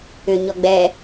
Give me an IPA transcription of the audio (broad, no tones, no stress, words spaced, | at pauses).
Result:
ʏ ɲɔɡ͡bɛ